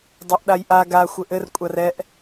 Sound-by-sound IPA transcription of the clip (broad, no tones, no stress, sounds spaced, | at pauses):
dˤ a ʔ ɗ a j ʔ a ɡ a xʷ ɘ ʔ ɘ r kʷʼ a r ɛ ʔ